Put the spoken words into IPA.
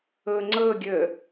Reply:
ɤ ŋ͡ǀ ɤ ɡʲ ə

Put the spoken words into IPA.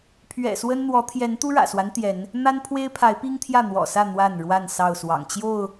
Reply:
pʰ ɥ ɛ̰˨˩ s w ə˦ n n̪ w ɔ˨˦ t̪ʰ j ɛ˨˦ n t̪ u˦ ɻ ä̰˨˩ s w a˦ n t̪ j ɛ˨˦ n | n̪ a˦ n pʰ w e˦ ɪ̯ pʰ a˨˦ ɪ̯ p i˦ ŋ t̪ʰ j ä˥˨ n̪ w ɔ̰˨˩ s ä˥˨ n̪ w a˥˨ n ɻ w a˥˨ n s ɑ˥˨ ʊ̯ s w ɑ̰˨˩ ŋ t͡ɕ j o˥˨ ʊ̯

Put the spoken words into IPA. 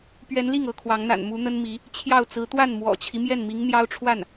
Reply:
p ɥ ɛ˧˥ n l i˥˩ ŋ ɤ˧˥ kʰ w ɑ˧˥ ŋ n̪ a̰˨˩ n m u˧˥ n̪ ə˥ n m i˧˥ | t͡ɕʰ j ɑ˥˩ ʊ̯ t͡s ɹ̩˧˥ t̪ w a˥˩ n m w ɔ̰˨˩ t͡ɕʰ i˦ m j ɛ˥˩ n m i˧˥ ŋ n̪ j ɑ˥ ʊ̯ ʈ͡ʂʰ w a˥˩ n

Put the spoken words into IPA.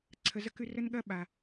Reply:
ǀʰ ə˨ z ə˦ k ʉ˦ r ə˥ n ɠ ɐ˥ ɓ a˩

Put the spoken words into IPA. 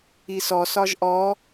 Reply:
i s ɔ s ɒ ʒ ʔ ɔ

